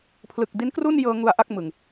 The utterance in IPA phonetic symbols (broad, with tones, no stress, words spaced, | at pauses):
pʰlɯ˨˩k̚di˦˥nkru˥˩njɤː˧ ŋu˧a̯ ʔa˥˩k̚mɯ˨˩ŋ